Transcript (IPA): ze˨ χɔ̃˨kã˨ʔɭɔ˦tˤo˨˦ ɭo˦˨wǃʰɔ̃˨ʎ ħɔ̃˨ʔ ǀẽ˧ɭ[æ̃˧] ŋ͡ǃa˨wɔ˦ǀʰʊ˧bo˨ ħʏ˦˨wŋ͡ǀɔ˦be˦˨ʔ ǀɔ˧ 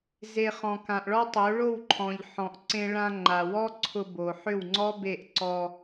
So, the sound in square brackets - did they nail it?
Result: no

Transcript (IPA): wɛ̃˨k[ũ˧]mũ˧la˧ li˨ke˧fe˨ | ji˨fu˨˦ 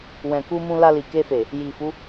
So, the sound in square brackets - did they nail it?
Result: no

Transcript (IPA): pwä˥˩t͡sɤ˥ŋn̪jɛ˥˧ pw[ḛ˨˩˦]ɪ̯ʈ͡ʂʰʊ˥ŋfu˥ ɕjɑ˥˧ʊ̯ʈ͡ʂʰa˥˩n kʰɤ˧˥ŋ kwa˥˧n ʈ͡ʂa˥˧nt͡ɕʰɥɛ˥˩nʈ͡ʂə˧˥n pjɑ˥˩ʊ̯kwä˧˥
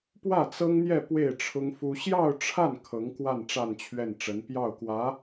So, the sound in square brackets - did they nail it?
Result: no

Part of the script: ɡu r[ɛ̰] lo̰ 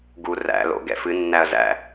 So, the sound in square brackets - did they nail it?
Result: no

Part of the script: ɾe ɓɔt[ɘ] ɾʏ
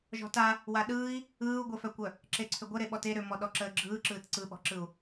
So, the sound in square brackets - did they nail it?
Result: no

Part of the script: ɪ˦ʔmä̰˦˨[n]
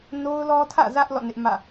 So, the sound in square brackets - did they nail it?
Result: no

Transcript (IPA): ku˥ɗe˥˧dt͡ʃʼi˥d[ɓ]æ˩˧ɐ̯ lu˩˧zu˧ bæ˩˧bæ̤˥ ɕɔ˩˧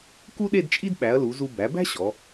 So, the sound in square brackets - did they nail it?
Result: yes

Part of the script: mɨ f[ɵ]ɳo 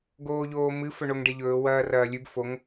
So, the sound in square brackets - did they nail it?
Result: yes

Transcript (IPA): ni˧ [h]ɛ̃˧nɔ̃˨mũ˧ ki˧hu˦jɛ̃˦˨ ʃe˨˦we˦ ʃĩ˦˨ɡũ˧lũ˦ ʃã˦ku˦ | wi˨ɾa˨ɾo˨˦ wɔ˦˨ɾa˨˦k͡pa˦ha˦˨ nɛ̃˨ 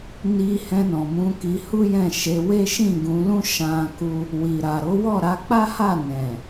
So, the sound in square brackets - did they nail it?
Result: yes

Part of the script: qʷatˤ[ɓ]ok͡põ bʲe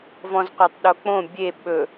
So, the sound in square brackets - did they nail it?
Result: no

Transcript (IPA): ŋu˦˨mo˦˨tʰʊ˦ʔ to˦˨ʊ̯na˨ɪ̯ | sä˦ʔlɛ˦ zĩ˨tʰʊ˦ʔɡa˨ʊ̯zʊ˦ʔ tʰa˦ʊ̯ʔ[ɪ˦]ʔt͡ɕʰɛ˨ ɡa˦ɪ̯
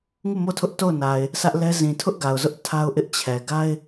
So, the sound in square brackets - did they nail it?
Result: yes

